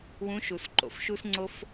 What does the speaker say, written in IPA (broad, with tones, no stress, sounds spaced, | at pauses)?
w ũ˧˥ ʃ u˧ s ǃ o̰˩˧ f ʃ u˥ s ŋ͡ǀ o˥ f